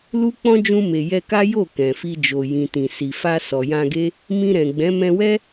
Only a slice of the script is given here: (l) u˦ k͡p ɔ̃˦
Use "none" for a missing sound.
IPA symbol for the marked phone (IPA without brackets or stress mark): l